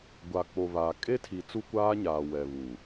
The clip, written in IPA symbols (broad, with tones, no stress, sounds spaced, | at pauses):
ɡʷ a˨ k͡p o˨ β a˨ kʼ e˦ tʰ i˨ t͡s u˦ kʷ aː˦ ɲ aː˨ w ɛ˨ β u˨